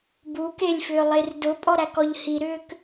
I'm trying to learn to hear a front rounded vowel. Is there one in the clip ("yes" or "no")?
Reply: yes